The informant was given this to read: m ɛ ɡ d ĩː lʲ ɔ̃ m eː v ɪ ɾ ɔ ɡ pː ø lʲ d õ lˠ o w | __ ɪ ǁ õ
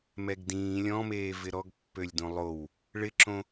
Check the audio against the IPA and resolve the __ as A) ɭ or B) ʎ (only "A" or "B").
A